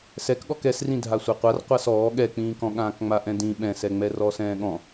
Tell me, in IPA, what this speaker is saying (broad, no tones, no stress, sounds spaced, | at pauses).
s ɛ k ɠ ɔ k ɛ s r ĩ dʱ a sʷ ɛ qʷ a r qʷ a s ɔː ɠ ɛ k͡p ĩː k ɔ̃ ɠ ãː k ŋ͡m a ʔ ɛ̃ d ĩ ɓ ɛ̃ s ɛ ŋ͡m ɛ r ɔː s ɛ̃ː ɠ ɔ̃